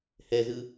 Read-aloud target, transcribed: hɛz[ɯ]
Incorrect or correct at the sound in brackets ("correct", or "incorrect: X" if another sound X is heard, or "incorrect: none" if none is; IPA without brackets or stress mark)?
correct